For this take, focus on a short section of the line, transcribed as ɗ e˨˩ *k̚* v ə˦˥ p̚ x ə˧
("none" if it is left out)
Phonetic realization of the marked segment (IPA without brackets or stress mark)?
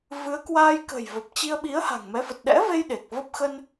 k̚